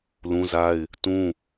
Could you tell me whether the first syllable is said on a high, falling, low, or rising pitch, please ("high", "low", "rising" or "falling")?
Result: high